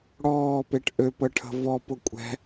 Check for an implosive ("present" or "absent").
absent